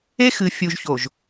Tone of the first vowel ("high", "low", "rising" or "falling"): high